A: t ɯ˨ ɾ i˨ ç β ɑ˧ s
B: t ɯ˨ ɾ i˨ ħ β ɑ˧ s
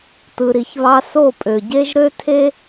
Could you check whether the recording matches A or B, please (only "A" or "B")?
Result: A